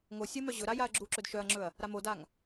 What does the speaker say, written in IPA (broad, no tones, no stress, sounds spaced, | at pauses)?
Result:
ŋ o sʲ ə m œ ʑ ɵ ɾ a j a ɐ̯ ɡ͡ǁ u ǁ ɵ d ʃ œ ɐ̯ ŋ͡ǁ ɵ ɐ̯ | ɾ a m o d a ŋ